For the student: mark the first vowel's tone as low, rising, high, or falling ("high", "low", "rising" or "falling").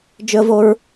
high